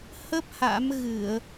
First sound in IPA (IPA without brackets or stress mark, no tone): h